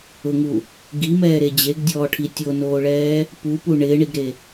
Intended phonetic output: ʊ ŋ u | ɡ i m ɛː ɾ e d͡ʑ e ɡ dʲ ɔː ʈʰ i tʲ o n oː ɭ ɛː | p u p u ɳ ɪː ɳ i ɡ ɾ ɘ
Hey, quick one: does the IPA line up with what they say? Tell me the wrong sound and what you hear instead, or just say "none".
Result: ɘ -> e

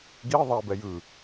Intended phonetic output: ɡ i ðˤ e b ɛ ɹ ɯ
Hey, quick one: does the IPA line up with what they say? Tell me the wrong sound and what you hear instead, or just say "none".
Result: ɹ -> j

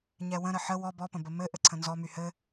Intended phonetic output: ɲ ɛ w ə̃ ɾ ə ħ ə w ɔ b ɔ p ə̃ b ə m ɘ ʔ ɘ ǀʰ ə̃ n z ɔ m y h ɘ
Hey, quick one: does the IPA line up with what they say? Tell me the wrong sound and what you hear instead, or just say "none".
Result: none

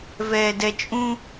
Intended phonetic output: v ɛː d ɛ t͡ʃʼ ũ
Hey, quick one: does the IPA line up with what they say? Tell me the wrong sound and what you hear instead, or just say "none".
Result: none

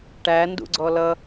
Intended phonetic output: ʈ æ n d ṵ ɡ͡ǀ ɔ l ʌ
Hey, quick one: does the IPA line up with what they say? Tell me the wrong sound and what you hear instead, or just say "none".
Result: none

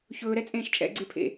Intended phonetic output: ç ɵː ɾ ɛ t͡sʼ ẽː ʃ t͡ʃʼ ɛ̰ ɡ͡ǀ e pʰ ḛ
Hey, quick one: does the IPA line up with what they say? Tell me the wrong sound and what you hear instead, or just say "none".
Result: none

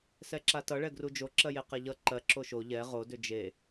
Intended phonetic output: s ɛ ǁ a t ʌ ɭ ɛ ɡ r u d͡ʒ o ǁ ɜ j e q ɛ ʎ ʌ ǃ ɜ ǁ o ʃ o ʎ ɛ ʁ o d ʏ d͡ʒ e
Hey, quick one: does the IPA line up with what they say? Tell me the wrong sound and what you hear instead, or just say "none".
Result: none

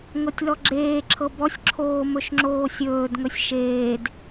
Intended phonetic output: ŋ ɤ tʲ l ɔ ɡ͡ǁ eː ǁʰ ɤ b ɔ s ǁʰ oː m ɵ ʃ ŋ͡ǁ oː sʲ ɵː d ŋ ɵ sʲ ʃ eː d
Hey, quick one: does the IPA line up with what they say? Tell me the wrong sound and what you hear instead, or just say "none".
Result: s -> sʲ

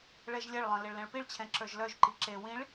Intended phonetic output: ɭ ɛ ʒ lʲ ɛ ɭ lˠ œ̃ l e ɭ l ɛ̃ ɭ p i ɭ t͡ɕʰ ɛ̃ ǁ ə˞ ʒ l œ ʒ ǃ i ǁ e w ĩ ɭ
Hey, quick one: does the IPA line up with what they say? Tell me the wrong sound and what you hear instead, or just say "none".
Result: none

